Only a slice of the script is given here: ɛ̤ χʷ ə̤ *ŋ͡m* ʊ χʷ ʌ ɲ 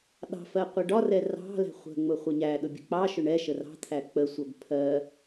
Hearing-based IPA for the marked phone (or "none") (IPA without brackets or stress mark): ŋ͡m